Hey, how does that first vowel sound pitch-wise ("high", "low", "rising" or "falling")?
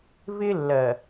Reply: high